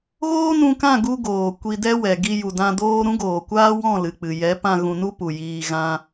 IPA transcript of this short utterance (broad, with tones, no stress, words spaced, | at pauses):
ɣoː˦nũ˧kã˦˨ɡu˧ ɡoː˨ kʷi˧dɛ˦wɛ˨ ɡi˧ju˨dã˧ doː˧ ɾũ˦ɡoː˨kʷaː˦wɔ̃˦˨ lɨ˨k͡pɨ˨jɛ˨˦pã˧ ɣũ˧nu˦pu˨jiː˧ ɣã˧